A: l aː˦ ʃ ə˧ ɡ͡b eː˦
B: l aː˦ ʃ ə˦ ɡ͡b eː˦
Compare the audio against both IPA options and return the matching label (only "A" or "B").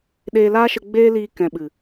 A